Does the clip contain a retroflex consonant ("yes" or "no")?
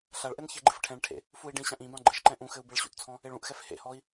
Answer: yes